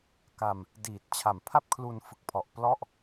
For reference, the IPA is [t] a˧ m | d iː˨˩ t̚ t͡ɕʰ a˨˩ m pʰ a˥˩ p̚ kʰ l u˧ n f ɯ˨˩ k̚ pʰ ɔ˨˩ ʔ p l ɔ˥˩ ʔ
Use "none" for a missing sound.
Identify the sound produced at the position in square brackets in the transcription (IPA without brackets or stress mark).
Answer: k